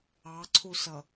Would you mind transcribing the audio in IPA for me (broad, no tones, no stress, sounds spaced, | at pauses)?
ɑ ǀʰ u s ʌ